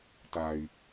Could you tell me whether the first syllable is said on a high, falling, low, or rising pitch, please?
low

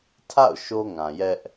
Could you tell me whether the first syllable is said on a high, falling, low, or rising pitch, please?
falling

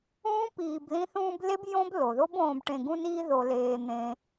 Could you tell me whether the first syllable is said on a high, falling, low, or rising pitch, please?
high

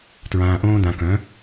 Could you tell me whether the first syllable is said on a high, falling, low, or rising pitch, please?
low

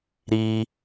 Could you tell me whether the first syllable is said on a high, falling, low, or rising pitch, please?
high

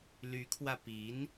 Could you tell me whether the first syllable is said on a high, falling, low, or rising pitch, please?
rising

